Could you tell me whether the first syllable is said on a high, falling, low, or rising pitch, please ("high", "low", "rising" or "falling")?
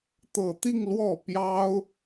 low